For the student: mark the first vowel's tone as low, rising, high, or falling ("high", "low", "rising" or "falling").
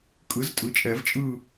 rising